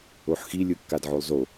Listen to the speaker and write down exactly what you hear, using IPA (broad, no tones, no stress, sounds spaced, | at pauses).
o ħ x i lʲ ɯ kː a d ʕ o lˠ z o